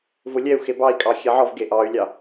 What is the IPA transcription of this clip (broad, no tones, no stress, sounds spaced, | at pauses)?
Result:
v ʊ lʲ ɛ u̯ x e b ɑ i̯ kʼ ɑ xʲ ɛ ʕ ɔ v ɡ e ʔ ɑ y̯ lʲ ɑ